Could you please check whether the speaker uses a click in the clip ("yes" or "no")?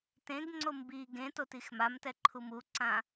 yes